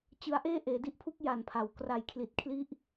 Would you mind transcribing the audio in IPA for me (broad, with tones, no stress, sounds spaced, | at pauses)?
t͡ɕ ɯ˦˥ a̯ ʔ eː˥˩ ʔ eː˩˦ d i˥˩ ʔ pʰ u˦˥ k̚ j a˨˩ n pʰ a˩˦ w k r a˨˩ j kʰ l i˨˩ t̚ kʰ l i˦˥ ʔ